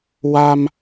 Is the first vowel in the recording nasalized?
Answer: no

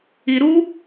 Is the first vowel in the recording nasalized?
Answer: no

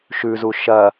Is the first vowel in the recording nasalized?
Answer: no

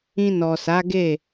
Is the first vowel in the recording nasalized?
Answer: yes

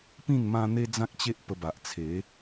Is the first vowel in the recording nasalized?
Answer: yes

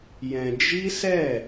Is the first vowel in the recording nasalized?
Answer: yes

